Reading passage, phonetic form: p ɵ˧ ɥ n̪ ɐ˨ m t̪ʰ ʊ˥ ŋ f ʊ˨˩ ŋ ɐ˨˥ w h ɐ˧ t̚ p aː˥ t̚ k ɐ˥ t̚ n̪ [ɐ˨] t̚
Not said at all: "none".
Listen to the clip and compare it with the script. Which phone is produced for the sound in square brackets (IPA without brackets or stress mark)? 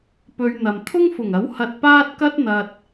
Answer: ɐ˨